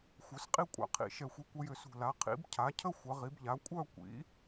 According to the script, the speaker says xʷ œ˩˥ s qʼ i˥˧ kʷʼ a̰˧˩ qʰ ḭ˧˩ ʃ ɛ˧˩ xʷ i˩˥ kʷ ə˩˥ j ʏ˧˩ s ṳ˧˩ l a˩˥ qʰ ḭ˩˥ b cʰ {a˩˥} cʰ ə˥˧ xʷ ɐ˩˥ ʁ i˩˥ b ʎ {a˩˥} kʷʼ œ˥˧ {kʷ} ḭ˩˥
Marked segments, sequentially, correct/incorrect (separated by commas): correct, correct, correct